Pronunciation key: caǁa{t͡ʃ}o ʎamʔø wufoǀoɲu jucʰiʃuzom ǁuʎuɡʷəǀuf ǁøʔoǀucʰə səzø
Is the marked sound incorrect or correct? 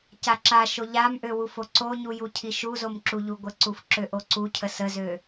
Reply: incorrect